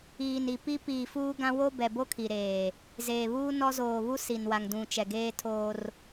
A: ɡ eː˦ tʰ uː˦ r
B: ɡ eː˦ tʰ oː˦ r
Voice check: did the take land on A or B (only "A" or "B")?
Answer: B